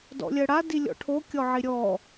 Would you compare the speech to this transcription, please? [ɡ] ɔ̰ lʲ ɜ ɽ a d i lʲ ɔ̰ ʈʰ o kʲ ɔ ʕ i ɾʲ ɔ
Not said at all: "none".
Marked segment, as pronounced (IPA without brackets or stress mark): d